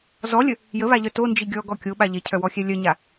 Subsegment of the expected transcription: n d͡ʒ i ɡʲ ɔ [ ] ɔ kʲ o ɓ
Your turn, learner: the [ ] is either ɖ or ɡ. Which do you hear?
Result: ɡ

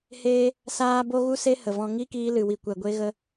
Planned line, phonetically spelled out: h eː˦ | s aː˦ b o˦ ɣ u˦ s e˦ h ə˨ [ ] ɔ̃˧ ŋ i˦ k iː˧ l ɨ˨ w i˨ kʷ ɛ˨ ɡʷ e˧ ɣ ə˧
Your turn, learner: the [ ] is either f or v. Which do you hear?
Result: v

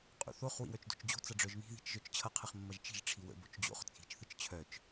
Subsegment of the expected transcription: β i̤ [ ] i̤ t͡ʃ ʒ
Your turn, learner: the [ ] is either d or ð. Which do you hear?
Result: ð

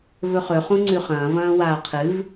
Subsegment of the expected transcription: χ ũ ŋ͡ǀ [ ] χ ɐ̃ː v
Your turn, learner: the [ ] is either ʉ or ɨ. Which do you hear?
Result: ʉ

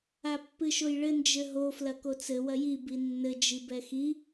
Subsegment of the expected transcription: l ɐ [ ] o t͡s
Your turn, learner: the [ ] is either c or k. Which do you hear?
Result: k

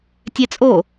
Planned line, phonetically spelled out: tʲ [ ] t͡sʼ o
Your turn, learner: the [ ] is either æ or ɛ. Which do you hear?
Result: ɛ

